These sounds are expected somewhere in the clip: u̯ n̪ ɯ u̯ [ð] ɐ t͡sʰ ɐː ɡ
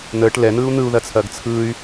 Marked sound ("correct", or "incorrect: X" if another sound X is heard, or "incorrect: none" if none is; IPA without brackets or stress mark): correct